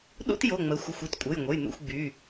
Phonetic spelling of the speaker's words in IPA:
ɗ ṵ˥ t j o˩˧˩ ŋ͡m ə˩˧ xʷ ə˩˧˩ xʷ i˦˨ t kʷʼ ə˩˧˩ j ŋʷ ə˩˧˩ j n̪ ṵ˦˨ xʷ ɡ͡b y˩˧˩

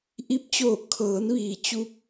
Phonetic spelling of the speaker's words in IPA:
ʔ i˧˥ p̚ t͡ɕ oː˧˩ kʰ ɤː˩˧ n ʋ iː˩ t͡ɕ u˧˥ p̚

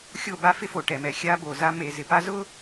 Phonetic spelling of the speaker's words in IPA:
xʲ o˦˨ b a˦ f ɪ˦ f o˨ ʈ ɛ˨ m ɛ˨ xʲ a˦ b o˨ z a˦ m e˨ z ɪ˨ p a˦ z ʊ˦

